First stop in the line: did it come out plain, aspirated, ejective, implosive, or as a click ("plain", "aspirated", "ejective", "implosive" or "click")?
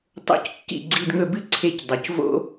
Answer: plain